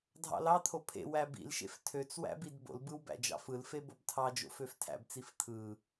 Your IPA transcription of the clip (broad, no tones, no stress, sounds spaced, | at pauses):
dʱ ɑ̰ l ɑ t̪ʰ o pʰ ḛ w æ b ḭ l ʃ ḛ f tʰ ø t͡s w æ̰ b i d b o̰ l b ɯ w b æ̰ d͡ʒ ɑ̰ f ɯ l f e b o b tʰ ɑ d͡ʒ o̰ f ø f tʰ æ̰ b t͡s i f t̪ʰ ɯ